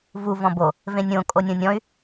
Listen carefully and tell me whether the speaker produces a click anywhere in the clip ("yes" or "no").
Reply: no